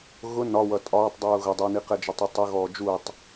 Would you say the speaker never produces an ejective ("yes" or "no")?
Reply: no